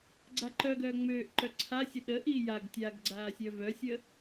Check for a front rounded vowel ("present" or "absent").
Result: present